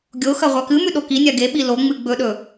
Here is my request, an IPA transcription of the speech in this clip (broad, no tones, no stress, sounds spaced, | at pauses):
ɡʲ o x ɐ ʁʷ a k ɨ m ʉ ɗ o k i nʲ a ɡ e ɓ i l o ŋ͡m ɨ ɡ͡b ɵ ɗ ɵ